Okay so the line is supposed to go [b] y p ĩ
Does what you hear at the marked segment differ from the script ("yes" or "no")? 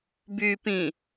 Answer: no